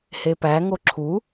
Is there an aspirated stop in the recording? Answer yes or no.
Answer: yes